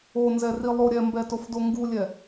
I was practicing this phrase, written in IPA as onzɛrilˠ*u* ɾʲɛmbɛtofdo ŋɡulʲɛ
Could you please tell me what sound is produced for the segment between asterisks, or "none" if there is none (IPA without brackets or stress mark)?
o